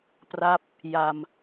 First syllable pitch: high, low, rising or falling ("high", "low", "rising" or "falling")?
falling